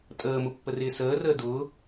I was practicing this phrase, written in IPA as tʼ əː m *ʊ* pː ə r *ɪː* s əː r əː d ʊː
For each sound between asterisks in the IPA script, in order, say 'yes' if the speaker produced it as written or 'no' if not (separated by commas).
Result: yes, yes